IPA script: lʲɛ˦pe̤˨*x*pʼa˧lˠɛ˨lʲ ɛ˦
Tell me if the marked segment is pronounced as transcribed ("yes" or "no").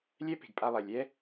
no